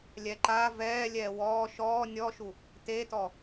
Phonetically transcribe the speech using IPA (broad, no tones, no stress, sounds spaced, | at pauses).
lʲ ɛ ǃ a v ɛː lʲ ɛː w ɔː ʃ ɔː nʲ ɔ ʃ u | t e t ɔ